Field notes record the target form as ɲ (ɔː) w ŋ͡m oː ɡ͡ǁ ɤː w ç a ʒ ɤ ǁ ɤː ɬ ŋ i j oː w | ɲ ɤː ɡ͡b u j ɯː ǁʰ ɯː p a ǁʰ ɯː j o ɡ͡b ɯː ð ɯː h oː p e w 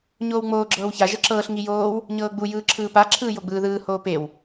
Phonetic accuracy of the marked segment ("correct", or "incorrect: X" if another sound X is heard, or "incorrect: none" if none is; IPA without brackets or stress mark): incorrect: oː